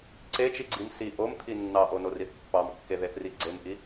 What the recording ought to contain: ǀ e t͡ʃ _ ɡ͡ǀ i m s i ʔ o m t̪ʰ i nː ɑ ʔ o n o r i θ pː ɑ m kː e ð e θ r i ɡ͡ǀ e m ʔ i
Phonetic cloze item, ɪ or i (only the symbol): i